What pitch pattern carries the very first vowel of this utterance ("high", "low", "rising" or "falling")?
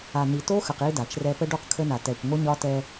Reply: low